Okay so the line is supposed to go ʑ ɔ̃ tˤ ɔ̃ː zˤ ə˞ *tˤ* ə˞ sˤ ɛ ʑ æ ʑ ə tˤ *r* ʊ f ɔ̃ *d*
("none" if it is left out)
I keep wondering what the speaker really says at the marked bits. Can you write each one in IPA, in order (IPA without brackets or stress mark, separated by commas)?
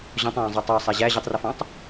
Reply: tˤ, r, tˤ